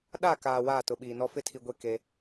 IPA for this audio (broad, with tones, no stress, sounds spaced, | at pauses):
ɗ a˦˨ k aː˨ w aː˦˨ t ʊ˨ ɓ iː˨ n ɔ˦ f ɪ˦ tʰ i˨ ɡʷ e˦˨ k e˦